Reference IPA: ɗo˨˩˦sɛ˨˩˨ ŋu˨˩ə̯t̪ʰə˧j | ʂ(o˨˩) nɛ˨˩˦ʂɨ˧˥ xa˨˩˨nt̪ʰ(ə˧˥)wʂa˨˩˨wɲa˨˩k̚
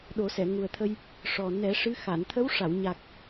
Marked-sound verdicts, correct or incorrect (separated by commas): incorrect, correct